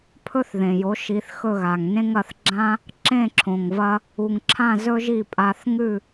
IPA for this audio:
pʰ ɵ˥ θ ð ẽ˩ j o˩˥ ʃ i˩˥ θ x ɵ˥˩ ɣ a˩ ŋ n ẽ˥ ŋ ɐ˥˩ θ ɡ͡ǁ ã˥ | ǁ ẽ˥˩ ǁʰ õ˩ ŋ v ɐ˧ | u˩ ŋ ǁʰ ã˥˩ z ɵ˥ ʒ i˥˩ pʼ a˧ θ ŋ ʉ˥˩

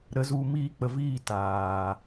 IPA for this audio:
ɾ ə˨˦ z u˧ m iː˧ k͡p ə˨ v iː˦˨ t aː˨

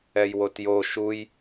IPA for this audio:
ɛ j w o t j o ʃ u j

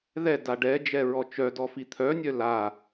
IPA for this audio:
ð ɛ d a ɖ ɛ d͡ʒ ɛ ɹ ɔ t͡ʃ œ d ɔ f i t̪ʰ œ nʲ œ l a

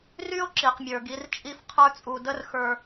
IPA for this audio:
r y˥ o̯ ǁ i˩ q mʲ ə˞˩ ɡ i˩˧ r t͡ʃʼ i˧˥ f qʰ ə˞˥ t͡sʼ u˧ d ə˥ r x ə˞˧

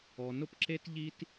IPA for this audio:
ɔ˨ n ʊ˦ p ǁ e˦ t ʎ i˦ t

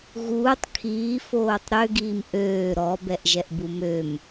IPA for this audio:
ɣ uː tˤ kʰ iː f oː tˤ ɾ ø ɡ iː m ʔ øː ɾ ɔ b ɛ ʔ ʒ ɛ ʔ b u m ø m

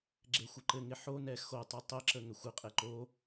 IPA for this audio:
ɡ͡ǁ e xʷ ɘ ǃ ɘ ŋ ɪ ħ o n ɛ x o tˤ ɯ tˤ ɘ ǁ ə ŋ ɛ xʷ ɘ qʼ e ǃ o

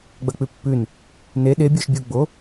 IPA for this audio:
ɡ͡b ɐ k͡p ʉ pː ʉ n | n e ɗ e bʲ o ʃ bʲ u ɡ͡b o

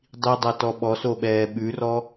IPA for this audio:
dˤ i dˤ a t ɔ ɓ ɔ s o ɓ ɛː ɓ ʉ r ɔ

